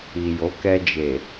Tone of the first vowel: low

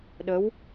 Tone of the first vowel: rising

